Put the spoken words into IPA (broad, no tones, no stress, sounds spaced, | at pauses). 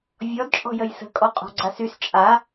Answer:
vʲ ɔ d t͡ʃʼ ɔ̤ j ə j s ə̤ kʼ ɔ qʼ ɔ̤ ɡ͡ǀ a s y s t͡ʃʼ a